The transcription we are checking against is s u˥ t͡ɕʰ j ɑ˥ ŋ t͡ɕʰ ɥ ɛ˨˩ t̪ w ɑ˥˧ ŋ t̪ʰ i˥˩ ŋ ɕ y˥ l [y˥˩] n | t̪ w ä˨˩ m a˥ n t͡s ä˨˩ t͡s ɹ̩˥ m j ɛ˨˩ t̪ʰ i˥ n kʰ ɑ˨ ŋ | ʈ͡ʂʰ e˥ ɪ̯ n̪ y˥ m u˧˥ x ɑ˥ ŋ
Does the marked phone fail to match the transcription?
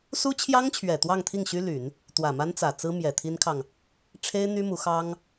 yes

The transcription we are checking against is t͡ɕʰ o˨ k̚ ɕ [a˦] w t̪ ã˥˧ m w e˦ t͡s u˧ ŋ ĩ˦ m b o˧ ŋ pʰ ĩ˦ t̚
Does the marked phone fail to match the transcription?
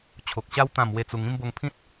no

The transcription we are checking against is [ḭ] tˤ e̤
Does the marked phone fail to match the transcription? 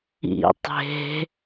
no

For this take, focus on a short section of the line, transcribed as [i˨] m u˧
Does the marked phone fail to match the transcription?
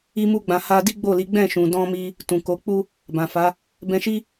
yes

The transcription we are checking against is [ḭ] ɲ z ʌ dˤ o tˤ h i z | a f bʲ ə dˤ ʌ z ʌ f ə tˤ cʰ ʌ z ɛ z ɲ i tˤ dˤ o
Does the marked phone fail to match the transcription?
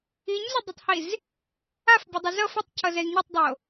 yes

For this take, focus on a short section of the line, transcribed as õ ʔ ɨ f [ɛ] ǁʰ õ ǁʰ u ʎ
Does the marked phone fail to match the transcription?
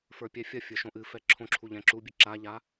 no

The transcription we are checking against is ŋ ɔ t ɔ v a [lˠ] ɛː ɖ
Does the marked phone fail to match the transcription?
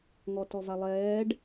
no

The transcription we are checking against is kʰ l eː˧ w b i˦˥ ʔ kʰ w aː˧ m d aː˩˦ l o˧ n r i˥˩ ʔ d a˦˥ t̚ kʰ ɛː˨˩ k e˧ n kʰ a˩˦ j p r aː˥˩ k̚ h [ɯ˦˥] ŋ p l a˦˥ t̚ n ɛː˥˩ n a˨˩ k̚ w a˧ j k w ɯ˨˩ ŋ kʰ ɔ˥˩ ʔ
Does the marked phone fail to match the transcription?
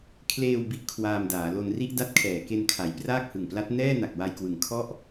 yes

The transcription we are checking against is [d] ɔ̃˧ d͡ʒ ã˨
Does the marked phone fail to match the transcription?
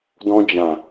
no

